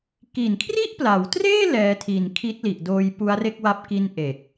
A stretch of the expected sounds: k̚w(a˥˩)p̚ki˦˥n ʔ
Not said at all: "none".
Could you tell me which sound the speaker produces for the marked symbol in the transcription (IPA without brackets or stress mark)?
a˦˥